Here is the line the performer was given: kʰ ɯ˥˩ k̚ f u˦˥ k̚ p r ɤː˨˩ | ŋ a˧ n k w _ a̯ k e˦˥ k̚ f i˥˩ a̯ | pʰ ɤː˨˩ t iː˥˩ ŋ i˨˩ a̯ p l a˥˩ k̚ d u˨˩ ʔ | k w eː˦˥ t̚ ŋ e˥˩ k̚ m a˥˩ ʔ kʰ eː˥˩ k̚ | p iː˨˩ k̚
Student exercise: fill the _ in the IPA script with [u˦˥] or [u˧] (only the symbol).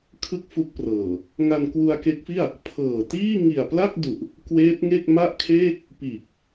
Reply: u˧